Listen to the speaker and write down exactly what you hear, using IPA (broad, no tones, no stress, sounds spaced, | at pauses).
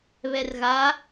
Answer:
β ɛ r ɣ a